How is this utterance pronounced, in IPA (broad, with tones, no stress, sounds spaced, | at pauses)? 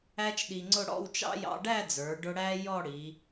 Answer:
æ˥ t͡ʃ ɗ i˧ ŋ͡ǀ ʊ˥˧ ɽ ɔ̰˥˧ w t͡ʃ ɑ̰˥ j ɑ̰˧ ɖ æ˥˧ d͡z ə˞˩˧ ɖ ʊ˧ ɽ æ˥ j ɔ˥˧ ɽ i˩˧